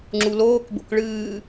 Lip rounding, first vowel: rounded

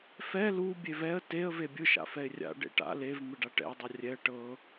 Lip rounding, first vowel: unrounded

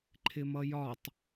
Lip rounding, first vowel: unrounded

